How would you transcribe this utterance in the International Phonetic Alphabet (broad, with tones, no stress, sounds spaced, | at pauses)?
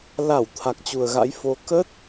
l a˧˩ w t̪ʰ a˨˩ k̚ t͡ɕ u˨˩ ə̯ ɣ a̰˧˥ j f o˧ k ə˦˥ t̚